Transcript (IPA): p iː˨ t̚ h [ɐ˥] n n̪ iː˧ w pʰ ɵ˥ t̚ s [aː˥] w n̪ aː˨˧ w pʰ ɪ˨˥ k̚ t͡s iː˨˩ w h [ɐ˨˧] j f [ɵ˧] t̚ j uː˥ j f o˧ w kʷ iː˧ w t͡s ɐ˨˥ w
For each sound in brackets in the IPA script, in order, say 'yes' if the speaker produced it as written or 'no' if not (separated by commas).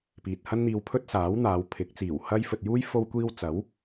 yes, no, no, no